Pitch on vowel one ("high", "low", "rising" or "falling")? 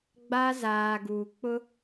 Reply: high